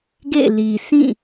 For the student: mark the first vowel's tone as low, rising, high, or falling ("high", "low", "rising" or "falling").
falling